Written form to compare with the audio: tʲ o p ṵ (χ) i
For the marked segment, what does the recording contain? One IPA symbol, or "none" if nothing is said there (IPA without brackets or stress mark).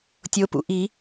ʔ